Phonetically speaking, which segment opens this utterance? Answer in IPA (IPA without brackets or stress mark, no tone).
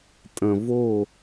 tʼ